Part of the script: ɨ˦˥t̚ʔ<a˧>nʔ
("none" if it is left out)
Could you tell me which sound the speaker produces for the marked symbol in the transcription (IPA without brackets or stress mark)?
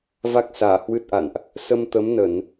a̰˧˨